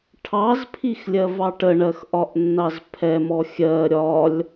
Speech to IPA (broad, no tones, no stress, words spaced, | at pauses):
ʈʰɑzpʰixlʲɜvɑ ʈəɳɜxʔɒʔnːɑz pʰɛmɔ xʲɜ ɾʲɒlʲ